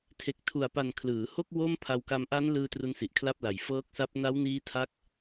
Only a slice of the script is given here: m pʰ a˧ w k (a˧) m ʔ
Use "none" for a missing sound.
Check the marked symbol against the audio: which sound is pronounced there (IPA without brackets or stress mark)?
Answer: a˧